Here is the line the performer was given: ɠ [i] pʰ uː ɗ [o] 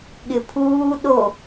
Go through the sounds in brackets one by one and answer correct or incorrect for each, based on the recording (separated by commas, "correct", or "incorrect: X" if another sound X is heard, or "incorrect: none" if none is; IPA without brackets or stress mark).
incorrect: ɪ, correct